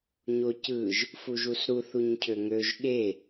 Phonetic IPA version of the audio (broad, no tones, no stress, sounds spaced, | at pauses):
ɲ o c ɯ ʒ | f u ʒ u s ɾ u θ u ɲ cʰ ø ŋ ø ʒ ɠ e